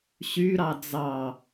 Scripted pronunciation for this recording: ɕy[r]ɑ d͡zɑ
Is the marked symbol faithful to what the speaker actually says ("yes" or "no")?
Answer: no